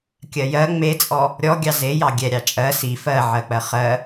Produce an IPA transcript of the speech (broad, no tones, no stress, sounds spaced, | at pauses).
kʲ ɜ j ɜ ŋ͡m e t͡sʼ ɔ | ɾʲ ɔ ɡʲ ɑ z e j ɑ ɡʲ ɛ ɾʲ ɑ t͡ʃʼ ɜ s i f ɜ ʕ ɜ k͡p ɜ χ ɜ